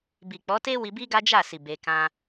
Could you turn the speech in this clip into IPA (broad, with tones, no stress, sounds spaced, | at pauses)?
b i˨ k͡p ɔ˨˦ t e˦ w i˧ b i˦ ɡ a˦ d͡ʒ a˦˨ s i˨ b e˧ k ã˦